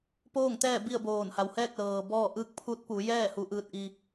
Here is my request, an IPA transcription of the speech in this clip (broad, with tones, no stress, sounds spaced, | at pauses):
p oː˥˨ ŋ t̪ ɛː˥˨ b i˥˨ ə̯ b oː˧˩ n h a˩ w h ɛː˥˨ k̚ l ɤː˩ b ɔː˥˨ ʔ ɯː˧ k̚ pʰ u˧˥ t̚ p u˩˧ j ɛː˥˨ h u˧˥ ʔ ɯː˧ t̚ ʔ i˧